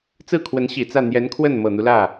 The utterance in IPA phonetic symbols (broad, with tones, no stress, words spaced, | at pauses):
t͡sɹ̩˥˩kʰwə˧˥n ɕi˨˩t͡sä˥˩ n̪jɛ˧˥nkʰwə˥˩n mɤ˨˩n̪u˦lä˥˩